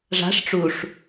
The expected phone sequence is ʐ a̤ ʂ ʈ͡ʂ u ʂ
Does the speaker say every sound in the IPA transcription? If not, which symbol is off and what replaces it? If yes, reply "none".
none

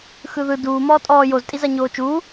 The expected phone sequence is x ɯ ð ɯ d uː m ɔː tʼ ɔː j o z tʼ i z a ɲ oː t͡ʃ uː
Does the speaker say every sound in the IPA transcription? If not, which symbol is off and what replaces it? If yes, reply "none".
none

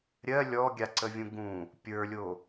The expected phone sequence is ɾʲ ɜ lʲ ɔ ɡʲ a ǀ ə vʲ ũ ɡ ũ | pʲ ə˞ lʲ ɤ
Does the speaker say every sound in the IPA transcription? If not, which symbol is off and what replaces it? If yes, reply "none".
ɤ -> o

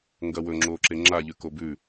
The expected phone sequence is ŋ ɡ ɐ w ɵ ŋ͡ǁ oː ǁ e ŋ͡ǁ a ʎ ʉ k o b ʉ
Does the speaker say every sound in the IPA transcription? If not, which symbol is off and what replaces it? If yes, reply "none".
none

